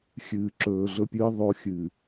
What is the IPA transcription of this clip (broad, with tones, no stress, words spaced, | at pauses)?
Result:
xʲɨː˨ǁɵː˨ɮɵ˦pʲɨː˦ ðˤo˦xʲɨ˨